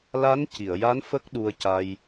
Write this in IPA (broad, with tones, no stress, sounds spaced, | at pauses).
l a˧˥ n c i˨˩˨ ə̯ j a˧˥ n f ə˦˥ k̚ ɗ u˧ ə̯ c a˧ j